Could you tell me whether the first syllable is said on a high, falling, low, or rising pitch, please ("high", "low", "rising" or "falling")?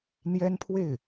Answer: high